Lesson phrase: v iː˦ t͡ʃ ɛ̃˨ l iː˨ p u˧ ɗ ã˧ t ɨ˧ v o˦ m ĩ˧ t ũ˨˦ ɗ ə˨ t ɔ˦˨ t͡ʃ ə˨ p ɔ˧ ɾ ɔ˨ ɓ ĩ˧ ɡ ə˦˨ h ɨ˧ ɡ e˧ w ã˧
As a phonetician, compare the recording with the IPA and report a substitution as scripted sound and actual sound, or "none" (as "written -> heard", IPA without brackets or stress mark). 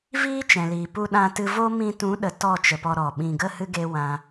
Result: none